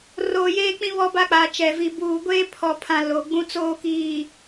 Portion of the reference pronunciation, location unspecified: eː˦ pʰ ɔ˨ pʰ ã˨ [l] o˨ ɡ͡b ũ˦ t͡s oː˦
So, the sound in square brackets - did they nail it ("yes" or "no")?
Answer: yes